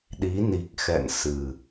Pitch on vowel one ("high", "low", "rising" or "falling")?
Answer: rising